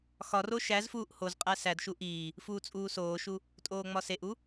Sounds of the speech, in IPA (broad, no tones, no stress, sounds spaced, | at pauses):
x ɒ r o ʃ æ z f uː ʔ h o z qʼ æ s æ d ʃ u ʔ iː | f uː t͡sʼ uː s oː ʃ u | tʼ oː ŋ͡m ɒ s e ʔ u